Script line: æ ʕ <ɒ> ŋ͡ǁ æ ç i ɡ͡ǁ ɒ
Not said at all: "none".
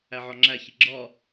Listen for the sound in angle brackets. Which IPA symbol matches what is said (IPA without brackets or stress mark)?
ɒ